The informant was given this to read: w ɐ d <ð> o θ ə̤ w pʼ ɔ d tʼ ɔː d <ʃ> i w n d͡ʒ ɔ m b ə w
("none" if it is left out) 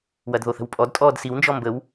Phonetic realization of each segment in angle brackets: ð, s

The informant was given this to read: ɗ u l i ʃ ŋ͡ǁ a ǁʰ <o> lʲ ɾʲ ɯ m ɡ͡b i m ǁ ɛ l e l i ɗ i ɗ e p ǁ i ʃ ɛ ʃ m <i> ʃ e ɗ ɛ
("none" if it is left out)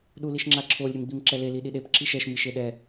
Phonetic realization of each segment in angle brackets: o, i

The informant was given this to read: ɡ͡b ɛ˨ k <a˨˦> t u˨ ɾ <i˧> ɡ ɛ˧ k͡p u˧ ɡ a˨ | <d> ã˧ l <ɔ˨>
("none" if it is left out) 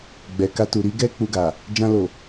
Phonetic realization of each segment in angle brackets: a˧, i˧, d͡ʒ, o˨

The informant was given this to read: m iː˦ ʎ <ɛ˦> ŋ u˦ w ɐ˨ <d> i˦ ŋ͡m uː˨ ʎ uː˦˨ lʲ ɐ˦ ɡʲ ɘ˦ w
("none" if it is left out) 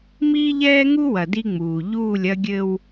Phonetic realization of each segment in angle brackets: ɛː˦, d

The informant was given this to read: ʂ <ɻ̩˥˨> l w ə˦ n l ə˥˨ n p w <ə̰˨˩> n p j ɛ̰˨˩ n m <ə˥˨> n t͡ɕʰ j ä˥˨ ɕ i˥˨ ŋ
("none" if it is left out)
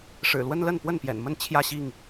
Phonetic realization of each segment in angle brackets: ɻ̩˨˩, ə˥˨, ə˥˨

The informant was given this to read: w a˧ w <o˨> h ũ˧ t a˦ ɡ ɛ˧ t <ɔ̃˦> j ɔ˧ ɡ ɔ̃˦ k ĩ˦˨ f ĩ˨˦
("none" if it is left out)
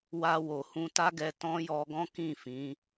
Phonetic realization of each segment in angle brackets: o˨, ɔ̃˦

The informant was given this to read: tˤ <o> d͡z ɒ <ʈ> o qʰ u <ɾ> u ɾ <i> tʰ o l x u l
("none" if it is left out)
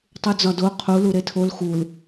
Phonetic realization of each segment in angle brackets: u, d, l, e

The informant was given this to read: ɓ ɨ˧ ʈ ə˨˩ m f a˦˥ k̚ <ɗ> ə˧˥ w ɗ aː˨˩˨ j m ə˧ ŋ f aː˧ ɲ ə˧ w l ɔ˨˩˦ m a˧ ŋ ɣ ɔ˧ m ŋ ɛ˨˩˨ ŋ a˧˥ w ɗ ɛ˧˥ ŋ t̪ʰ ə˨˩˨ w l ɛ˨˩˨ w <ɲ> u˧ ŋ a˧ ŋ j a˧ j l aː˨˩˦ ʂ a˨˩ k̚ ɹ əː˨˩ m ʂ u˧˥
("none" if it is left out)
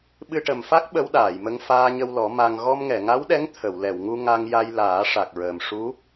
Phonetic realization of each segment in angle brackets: ɓ, ŋ

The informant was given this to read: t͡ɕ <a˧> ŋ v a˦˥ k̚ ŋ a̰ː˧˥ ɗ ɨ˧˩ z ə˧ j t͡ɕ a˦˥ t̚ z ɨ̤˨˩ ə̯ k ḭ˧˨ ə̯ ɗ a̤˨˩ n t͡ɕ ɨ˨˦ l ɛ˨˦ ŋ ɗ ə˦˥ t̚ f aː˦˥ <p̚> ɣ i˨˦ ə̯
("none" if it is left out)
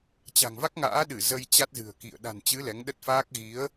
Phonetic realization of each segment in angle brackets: a̤˨˩, k̚

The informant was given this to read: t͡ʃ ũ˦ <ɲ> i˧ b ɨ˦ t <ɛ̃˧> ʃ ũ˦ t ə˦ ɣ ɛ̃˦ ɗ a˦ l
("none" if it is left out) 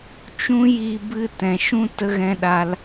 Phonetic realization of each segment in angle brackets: j, ɛ̃˧

